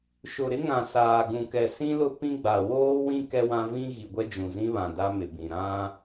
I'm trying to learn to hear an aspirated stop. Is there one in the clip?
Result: no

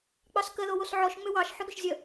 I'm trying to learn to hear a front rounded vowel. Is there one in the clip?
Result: yes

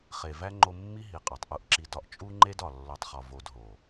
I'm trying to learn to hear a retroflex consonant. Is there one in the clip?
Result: no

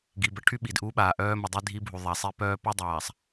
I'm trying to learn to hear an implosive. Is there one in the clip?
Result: yes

